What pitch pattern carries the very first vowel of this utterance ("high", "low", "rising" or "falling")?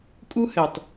high